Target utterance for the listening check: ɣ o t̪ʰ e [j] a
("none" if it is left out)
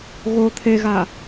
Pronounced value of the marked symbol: ɣ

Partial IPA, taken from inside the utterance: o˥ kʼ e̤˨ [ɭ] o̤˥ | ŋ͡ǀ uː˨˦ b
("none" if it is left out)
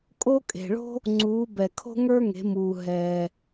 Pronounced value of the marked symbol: ɭ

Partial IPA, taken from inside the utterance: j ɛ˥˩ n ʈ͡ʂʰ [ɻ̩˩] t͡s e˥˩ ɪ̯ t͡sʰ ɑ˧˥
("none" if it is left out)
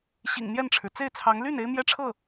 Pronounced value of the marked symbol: ɻ̩˩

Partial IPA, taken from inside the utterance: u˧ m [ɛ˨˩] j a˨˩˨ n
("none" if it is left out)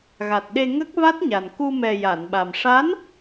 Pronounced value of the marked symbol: ɛ˨˩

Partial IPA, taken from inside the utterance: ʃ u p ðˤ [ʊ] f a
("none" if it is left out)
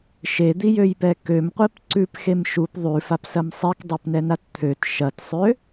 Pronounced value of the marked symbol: ʉ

